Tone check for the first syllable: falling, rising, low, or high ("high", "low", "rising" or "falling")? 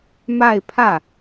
falling